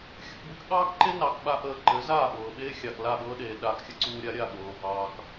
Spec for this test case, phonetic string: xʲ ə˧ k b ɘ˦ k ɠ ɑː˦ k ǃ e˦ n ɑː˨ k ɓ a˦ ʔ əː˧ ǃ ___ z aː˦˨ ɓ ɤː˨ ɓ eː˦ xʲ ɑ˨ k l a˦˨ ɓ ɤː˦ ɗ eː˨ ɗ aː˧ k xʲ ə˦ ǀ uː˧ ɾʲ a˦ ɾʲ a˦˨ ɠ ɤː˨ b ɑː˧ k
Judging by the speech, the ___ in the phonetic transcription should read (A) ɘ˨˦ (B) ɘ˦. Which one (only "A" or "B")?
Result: A